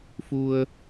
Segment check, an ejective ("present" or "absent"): absent